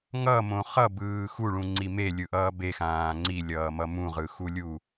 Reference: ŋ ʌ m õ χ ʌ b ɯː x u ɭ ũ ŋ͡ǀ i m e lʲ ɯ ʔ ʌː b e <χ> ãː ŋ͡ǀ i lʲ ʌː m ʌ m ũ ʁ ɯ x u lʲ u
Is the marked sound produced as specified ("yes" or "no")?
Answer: no